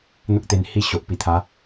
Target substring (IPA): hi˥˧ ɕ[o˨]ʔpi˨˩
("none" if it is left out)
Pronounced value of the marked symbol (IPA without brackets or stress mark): o˨